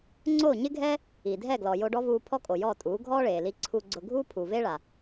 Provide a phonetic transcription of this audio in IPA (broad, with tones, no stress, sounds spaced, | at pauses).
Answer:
ŋ͡ǀ o˦˨ ɲ ɪ˦ ɡʱ ɛ˦ | i˨ dʱ ɛ˦˨ ɡ l ɔ˨ j o˧ ɖ ɔ˦ v uː˧ pʰ ɔ˦ kʼ o˨ j ɔː˦˨ tʼ uː˨˦ ɡʱ ɔː˦ ɭ eː˨ l i˧ ǀʰ u˨ ɡ͡ǀ ʊ˨ ɡʱ uː˦ pʰ u˨ v eː˦ ɭ a˨